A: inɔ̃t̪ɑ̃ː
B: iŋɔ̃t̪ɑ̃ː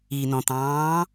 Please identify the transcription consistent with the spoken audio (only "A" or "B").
A